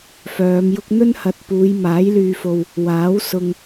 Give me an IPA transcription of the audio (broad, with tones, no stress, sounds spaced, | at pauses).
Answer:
f œː˨˧ m j ʊ˥ k̚ n̪ ɵ˥ n h ɐ˨ t̚ p uː˨˧ j m aː˨˥ j l yː˧ f o˧ w | w aː˨˥ w s ʊ˧ ŋ